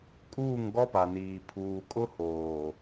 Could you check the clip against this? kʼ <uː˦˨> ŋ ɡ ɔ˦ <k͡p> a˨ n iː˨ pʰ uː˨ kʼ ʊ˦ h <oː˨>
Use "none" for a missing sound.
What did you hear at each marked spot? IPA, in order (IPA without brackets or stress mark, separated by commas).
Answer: uː˦˨, p, oː˨